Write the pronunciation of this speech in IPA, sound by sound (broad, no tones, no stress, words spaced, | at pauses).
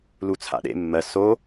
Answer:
lut͡sʰa̰ɗḛ mːɜ so